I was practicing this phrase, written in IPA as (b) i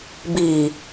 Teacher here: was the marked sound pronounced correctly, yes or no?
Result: yes